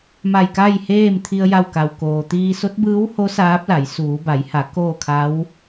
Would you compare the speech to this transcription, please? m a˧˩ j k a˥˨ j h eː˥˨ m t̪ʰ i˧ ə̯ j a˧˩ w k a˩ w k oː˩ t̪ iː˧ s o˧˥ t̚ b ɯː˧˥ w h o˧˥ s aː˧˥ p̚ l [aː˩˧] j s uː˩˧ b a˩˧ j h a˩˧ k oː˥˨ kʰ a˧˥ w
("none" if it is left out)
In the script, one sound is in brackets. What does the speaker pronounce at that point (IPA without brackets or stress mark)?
a˩˧